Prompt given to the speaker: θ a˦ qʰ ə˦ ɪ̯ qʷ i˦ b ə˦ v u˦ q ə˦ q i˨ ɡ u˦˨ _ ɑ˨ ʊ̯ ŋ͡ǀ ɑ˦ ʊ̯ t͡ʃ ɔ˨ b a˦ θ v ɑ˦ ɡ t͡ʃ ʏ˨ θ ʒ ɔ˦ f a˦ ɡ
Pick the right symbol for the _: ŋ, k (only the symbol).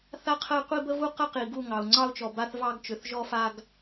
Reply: ŋ